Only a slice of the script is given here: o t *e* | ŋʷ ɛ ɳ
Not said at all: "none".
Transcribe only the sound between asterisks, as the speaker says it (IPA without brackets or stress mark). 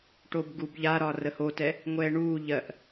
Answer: ɛ